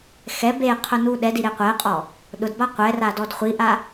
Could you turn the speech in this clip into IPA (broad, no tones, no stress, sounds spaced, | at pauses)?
x ɛ b e qʰ ʊ n u ɗ ɛ d i ɾ e qʷ ɛ qʼ ɔ | ɗ ʊ d b a qʷ ɛ r a d ɔ d χʷ i ʔ a